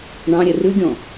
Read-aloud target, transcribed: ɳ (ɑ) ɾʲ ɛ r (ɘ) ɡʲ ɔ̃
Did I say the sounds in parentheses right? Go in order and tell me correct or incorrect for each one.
incorrect: ɑ̃, incorrect: ʉ

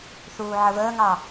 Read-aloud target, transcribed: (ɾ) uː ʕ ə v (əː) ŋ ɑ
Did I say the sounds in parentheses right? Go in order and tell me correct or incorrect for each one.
incorrect: θ, correct

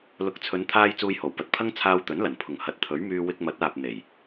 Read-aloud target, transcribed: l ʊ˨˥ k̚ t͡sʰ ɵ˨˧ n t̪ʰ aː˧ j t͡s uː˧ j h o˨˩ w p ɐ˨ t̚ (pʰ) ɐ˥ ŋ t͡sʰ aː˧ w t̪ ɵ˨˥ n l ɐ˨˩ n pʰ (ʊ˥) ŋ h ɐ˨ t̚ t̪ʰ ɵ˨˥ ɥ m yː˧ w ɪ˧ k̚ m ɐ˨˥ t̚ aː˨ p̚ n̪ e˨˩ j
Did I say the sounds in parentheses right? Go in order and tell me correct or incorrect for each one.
correct, incorrect: ʊ˨˩

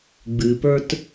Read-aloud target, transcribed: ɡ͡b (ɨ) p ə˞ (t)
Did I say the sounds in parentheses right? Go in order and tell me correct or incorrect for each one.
correct, correct

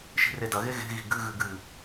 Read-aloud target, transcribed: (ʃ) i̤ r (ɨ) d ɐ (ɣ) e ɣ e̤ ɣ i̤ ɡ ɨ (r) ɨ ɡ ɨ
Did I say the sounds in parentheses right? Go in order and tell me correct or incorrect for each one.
correct, incorrect: e, correct, incorrect: ɣ

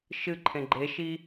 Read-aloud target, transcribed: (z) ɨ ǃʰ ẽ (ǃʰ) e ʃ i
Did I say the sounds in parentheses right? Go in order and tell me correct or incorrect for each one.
incorrect: ʃ, incorrect: ɡ͡ǃ

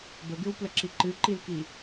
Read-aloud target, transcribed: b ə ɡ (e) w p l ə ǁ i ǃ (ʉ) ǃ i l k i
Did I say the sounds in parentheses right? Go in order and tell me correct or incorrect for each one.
incorrect: ɨ, incorrect: ɨ

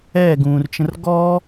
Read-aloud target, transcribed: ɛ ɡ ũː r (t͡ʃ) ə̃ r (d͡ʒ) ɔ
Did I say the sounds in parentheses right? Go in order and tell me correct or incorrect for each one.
correct, incorrect: ɡ

